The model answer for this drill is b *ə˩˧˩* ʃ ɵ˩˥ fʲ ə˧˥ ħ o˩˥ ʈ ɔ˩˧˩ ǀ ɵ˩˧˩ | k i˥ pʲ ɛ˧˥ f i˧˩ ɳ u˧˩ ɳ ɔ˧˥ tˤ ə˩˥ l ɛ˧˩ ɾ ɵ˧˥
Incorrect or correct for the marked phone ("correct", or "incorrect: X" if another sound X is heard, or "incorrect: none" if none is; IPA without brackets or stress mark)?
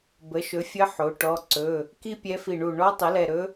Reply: incorrect: ə˩˥